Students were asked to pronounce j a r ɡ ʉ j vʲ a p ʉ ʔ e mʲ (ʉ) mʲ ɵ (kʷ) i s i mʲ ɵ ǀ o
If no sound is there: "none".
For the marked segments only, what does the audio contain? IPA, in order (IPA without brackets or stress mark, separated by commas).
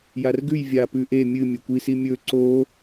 ɨ, kʷ